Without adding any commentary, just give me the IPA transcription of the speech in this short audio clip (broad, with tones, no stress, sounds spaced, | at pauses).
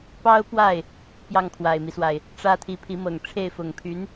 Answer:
p ɑ˥ ʊ̯ p w a˥˩ ɪ̯ | p j ɑ˥˩ ŋ kʰ w a˨˩ ɪ̯ m i˦ s w a˩ ɪ̯ | ʈ͡ʂ ä˥ t̪ʰ i˧˥ pʰ i˧˥ m ɤ˨˩ ŋ ʈ͡ʂʰ e˥˩ ɪ̯ f ʊ˨˩ ŋ pʰ y˧˥ n